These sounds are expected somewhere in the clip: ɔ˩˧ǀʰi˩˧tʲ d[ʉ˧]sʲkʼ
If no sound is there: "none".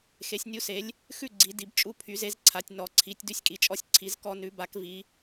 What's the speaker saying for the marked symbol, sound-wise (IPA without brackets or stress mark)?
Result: ʉ˧